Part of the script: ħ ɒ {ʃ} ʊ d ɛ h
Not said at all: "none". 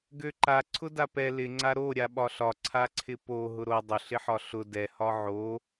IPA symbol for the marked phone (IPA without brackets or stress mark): ɬ